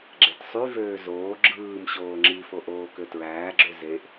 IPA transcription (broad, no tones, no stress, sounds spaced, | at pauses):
ɡ͡ǁ e t sˤ y v øː z oː ɡ͡ǁ ɯː m ɕ oː ŋ͡ǁ i f o ʔ oː k ø t ɹ æː ɡ͡ǁ ø z e ʔ